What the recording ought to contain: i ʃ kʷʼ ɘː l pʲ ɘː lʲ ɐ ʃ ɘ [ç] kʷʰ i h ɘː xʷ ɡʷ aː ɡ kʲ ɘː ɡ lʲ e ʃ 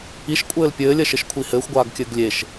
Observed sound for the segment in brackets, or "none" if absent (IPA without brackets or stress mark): ʃ